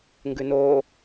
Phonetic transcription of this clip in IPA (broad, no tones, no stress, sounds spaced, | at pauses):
ŋ ɡ ʉ n oː